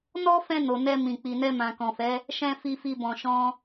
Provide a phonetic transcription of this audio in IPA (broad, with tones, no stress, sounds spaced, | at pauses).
n ɔ˦ f ɛ̃˧ n o˨ n ɛ˧ m ĩ˨ k͡p i˨ n ɛ˧ m ã˨ k ɔ̃˨ f ɛ˨˦ | ʃ ɛ̃˦ f i˦ f i˦ b ɔ̃˧ ʃ ɔ̃˦